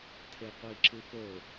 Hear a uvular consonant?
yes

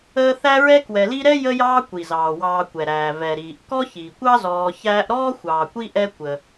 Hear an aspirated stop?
no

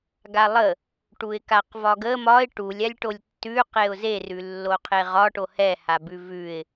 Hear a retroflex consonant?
yes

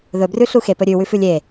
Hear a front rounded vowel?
no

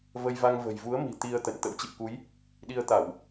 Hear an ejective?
no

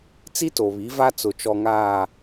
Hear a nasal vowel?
no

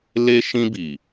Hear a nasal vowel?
yes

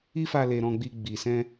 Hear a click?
no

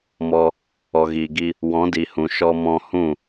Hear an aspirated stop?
no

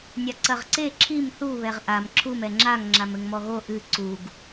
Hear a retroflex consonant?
no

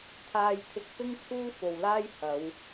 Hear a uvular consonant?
no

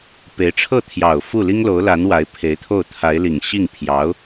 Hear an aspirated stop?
yes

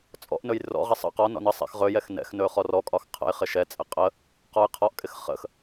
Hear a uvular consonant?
yes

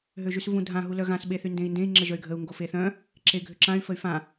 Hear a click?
yes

